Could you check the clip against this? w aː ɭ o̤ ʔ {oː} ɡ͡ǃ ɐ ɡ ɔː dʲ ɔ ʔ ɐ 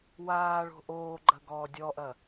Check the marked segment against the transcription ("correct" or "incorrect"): correct